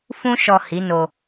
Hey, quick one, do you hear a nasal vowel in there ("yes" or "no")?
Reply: yes